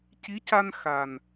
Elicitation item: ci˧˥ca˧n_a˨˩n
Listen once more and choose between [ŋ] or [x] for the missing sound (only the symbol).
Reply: x